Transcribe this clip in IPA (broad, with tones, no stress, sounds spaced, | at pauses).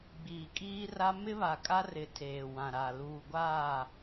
ɡ͡b iː˨ kʼ iː˦ r a˦ m ɪ˦ β a˨ kʼ a˦ r ɪ˨ tʰ eː˨ w ã˨ ɾ a˨ l uː˨ ɡʷ aː˦˨